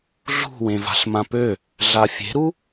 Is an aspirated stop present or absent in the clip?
absent